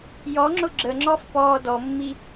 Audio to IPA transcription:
j ɔ ŋ͡ǁ ʊ ɡ͡ǁ ə ŋ͡ǁ ɔ f p ɔː d ɔ mː i

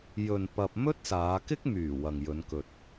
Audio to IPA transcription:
j ɵ˨ n p ɐ˧ p̚ m ɵ˥ t̚ s aː˨˧ k ɪ˥ k̚ m yː˨˩ w ɐ˨ ŋ j ɵ˨˧ n k ɵ˨ t̚

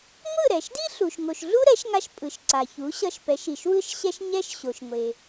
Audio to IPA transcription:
ŋʷ ɯ˥˩ ɾ ɛ˩ ʃ d i˥ ɬ u˩ ʃ ŋ o˩ ʃ ɮ u˥ ɾ ɛ˩˥ ʃ ŋ a˧ ʃ pʼ ɯ˩ ʃ ǀ a˩ ç u˩˥ ɕ ʌ˧ ʃ p ɛ˩˥ ʃ i˩ ʃ w ɯ˥ ʃ ɕ ɛ˥ ʃ ɲ ɛ˥ ʃ ɕ o˩ ʃ ŋʷ e˩

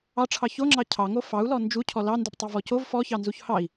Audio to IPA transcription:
ɑ ʈ͡ʂʰ ɑ ç o ŋ͡ǁ ɑ cʰ ɑ ŋ o f ɑ u̯ l ɔ n d͡ʒ u cʰ ɔ l ɑ n d u p tˤ o v ɔ c o v f ɔ ç ɑ n z u ç h ɑ i̯

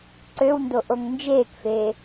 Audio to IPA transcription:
ǀ ø w n d o ʔ o ŋ n d͡ʒ eː k f eː

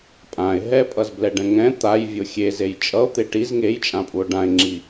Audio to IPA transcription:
pʼ ã e̯ ɦ ɛ pʼ ʌ z b l ɛ ɖ ɛ̃ ŋ ɛ̃ t̪ a j vʲ o xʲ e z e j t͡ʃʼ ʌ o̯ t̪ e ʈ i z ŋ e j t͡ʃʼ ã pʼ u o̯ ɖ ã e̯ ŋ͡ǁ i

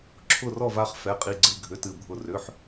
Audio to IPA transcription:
ǁʰ ʊ˥˧ r ɔ˥˧ v a˥˧ χ f ɛ˧˥˧ qʼ i˧˥˧ ɡ͡ǀ ɨ˧˥˧ ɡʱ ʏ˧˥˧ t ɨ˥˧ bʱ ʊ˥˧ r ʏ˧˥˧ ħ

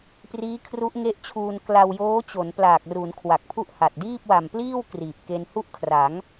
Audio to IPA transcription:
p r iː˦˥ kʰ r u˦˥ ʔ ŋ e˦˥ ʔ t͡ɕʰ uː˧ n k l a˧ w j oː˦˥ t͡ɕ o˩˦ n p l aː˨˩ k̚ r u˩˦ n kʰ w a˨˩ k̚ pʰ u˥˩ ʔ h a˨˩ t̚ d iː˥˩ p̚ w a˨˩ m p l iː˥˩ w k r iː˨˩ p̚ k e˧ n h u˥˩ ʔ kʰ r a˩˦ ŋ

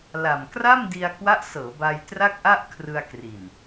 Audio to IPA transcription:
l a˨˩ m k r a˥˩ m d i˧ a̯ k w a˦˥ ʔ s ɤː˩˦ b a˧ j t r a˥˩ k̚ ʔ a˥˩ ʔ kʰ r ɯ˧ a̯ k r i˨˩ n

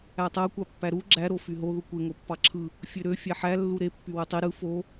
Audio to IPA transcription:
æ tˤ æ kʷ ɑ pː æ ɾ u ɡ͡ǁ æ ɾ o f y ɦ o ð u kʷ e ŋ o pː ɑ ǁʰ ɯ | fʲ ø ɾ ø fʲ æ ħ æ lː u ɾ e pː y w ø tˤ i ɾ ɯ f o

